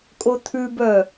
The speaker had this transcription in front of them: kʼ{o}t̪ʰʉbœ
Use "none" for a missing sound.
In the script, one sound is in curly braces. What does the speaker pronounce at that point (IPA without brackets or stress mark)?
o